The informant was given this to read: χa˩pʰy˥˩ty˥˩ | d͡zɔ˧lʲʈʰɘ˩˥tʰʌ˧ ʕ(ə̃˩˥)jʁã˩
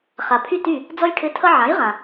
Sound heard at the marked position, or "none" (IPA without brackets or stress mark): ã˩˥